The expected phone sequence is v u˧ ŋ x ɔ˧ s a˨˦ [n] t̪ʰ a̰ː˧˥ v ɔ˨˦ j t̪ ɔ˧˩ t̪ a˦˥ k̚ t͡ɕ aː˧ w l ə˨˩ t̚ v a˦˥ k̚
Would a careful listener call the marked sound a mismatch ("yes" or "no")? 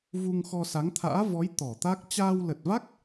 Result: yes